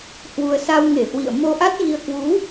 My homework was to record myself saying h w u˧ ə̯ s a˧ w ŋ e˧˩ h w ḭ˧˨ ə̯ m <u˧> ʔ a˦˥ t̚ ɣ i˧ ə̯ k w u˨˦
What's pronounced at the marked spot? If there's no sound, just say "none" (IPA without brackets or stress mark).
o˧